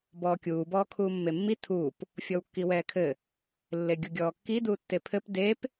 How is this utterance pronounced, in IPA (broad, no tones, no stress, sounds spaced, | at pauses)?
b ɔː kʲ uː b ɔː kʰ uː mː e mː i tʰ uː p | fʲ ɔ w kː i w ɛː kʰ ɘ | lː e ɡʲ u ɡʲ ɔː kː i d uː tː e pʰ ɘ p d e p